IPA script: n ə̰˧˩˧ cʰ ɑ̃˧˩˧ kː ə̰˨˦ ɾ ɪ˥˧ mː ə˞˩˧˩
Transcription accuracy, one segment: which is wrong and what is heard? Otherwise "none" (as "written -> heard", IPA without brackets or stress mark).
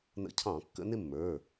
ɾ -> n